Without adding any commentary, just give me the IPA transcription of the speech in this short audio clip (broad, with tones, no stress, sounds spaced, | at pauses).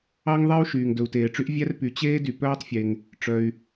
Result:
ɑ˥ ŋ ðˤ e˥ u̯ ʃ yː˩ ŋ d ɵ˩ u̯ t eː˩ ʈ͡ʂ y˥ ʔ vʲ æ˥ r p y˩ t͡ɕ eː˥ d y˩ p œː˥ tˤ fʲ e˩ ŋ | ʈ͡ʂ œ˩ y̯